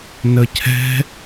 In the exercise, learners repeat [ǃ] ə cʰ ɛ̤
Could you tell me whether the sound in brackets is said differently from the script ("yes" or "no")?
yes